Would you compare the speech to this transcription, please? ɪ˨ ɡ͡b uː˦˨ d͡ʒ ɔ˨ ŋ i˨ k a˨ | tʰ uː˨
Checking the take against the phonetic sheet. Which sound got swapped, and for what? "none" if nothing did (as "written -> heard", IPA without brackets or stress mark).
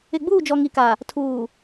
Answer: none